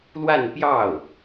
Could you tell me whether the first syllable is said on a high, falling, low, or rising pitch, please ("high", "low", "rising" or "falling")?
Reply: falling